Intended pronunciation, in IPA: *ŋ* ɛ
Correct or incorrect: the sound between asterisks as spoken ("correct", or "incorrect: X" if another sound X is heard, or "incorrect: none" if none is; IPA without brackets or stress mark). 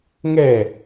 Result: correct